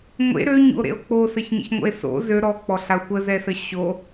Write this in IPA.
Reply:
ŋʷ ḛ ɾ ø ɲ ṵ o̯ ɾ ḛ o̯ k͡p o s ə ç ɲ ə̰ ç ŋʷ ə̰ e̯ s o̰ z ø ɾ ɔ k͡p ɔ ɬ a xʷ ə z ɛ s ə ɕ o

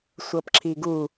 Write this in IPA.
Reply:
sʷ ɤ p ǁ i ɡ u

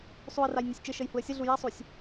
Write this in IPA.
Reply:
sˤ u ə̯ r a j nʲ ɔ sʲ t͡ʃ ɘ ʃ ə j h u ə̯ sʲ ə ɮ u j a sˤ u sʲ

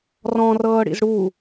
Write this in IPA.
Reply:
r ɔ̃ r ɤː ɽ ḭ z ɽ u

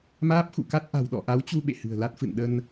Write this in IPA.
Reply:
m aː˦˥ p̚ x ṵ˧˨ k a˦˥ t̚ ʔ a̤˨˩ w ɗ ɔ̰˧˨ ʔ a˨˦ w t͡ɕ u˧ ɓ ḛ˧˨ h ɨ̤˨˩ ə̯ l a˦˥ t̚ f ɨ̰˧˨ n ɗ ə˧ n

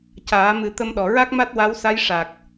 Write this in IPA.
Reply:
c aː˨˩˦ m ɨ˨˩˦ t̪ ə˧ m ɗ ɔ˨˩ ɹ a˦˥ k̚ m a˦˥ t̚ w a˧˥ w s a˧˥ j ʂ a˨˩ k̚

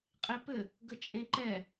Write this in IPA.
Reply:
qʼ e p ɘ | ɡ ə t͡ʃʼ ẽ ǃ ɛ

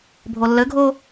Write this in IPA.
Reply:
bʱ o lː ɘ ɡʱ o

